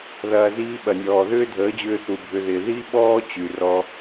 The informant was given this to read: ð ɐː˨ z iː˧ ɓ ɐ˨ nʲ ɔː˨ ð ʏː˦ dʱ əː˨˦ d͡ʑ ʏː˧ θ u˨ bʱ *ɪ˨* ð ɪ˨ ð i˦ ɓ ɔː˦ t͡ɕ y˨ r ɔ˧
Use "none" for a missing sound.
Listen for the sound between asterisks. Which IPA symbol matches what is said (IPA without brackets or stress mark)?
ʏ˨